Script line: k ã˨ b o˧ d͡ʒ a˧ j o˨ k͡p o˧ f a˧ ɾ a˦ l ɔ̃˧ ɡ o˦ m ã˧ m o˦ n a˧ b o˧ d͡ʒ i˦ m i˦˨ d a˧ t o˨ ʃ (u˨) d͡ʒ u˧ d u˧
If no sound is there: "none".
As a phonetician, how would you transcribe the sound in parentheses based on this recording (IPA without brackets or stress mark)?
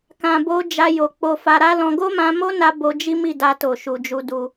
u˨